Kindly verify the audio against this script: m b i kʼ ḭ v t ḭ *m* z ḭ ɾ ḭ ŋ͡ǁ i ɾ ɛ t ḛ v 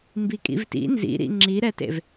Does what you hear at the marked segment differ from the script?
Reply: yes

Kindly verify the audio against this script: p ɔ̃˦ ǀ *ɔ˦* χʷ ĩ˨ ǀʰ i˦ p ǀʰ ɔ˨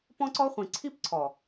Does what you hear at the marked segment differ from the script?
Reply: no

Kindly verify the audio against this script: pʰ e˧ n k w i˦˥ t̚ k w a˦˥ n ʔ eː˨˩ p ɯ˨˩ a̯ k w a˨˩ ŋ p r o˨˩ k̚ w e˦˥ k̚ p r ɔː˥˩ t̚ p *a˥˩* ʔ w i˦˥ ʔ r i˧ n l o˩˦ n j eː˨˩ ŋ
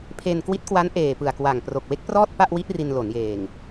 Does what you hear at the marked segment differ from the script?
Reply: no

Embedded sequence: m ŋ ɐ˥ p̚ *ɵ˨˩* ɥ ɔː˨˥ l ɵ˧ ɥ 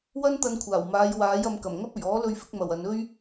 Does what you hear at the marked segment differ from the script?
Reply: no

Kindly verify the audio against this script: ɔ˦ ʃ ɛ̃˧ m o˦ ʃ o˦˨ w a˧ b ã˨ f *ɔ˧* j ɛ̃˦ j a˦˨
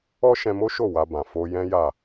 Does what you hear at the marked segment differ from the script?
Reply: yes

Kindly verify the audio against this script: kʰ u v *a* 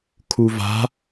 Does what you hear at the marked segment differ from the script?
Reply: yes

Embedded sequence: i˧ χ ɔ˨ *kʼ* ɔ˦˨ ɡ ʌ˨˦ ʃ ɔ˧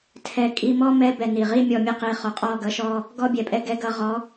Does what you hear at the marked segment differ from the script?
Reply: yes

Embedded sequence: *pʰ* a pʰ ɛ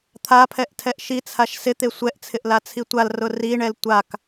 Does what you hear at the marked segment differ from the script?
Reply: yes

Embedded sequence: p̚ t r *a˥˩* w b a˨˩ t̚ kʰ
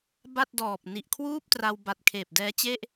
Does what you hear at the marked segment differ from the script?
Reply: yes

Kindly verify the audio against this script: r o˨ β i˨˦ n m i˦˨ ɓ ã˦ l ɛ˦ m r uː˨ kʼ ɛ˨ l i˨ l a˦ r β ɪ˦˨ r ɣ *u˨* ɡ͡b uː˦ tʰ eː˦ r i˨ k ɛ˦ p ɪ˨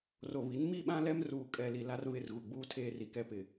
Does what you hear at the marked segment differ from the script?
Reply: no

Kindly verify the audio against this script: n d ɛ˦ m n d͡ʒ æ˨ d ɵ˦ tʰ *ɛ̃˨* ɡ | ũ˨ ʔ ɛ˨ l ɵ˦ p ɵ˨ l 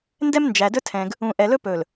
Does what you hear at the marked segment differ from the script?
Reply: no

